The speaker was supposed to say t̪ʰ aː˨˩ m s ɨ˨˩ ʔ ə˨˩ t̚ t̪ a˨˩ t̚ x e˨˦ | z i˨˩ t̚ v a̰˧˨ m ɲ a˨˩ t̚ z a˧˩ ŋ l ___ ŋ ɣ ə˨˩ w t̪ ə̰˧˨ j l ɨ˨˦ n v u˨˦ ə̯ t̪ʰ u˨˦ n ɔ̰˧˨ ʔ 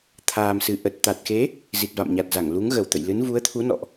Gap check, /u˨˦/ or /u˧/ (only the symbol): u˨˦